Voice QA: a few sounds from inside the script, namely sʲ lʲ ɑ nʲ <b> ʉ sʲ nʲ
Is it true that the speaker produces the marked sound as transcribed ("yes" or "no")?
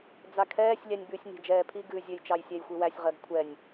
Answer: yes